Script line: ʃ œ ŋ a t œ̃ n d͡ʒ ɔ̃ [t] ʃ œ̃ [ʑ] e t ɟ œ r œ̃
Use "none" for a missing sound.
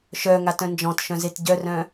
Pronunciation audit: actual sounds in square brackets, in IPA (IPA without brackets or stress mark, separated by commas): t, z